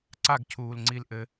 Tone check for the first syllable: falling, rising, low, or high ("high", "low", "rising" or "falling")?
falling